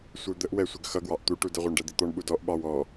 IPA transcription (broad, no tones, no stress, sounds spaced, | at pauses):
sʷ ə˞ d̪ ə ʔ w ɛ sʷ ə ɡ x ʌ ɡ w ɑ ʔ t̪ u ʈ u d ə ʁʷ ɑ ɳ ɖ ɛ d̪ i t̪ ɔ ɳ ɓ u d ɔ ʔ ɓ ɑ w ɔ